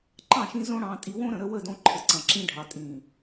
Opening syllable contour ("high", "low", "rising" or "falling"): falling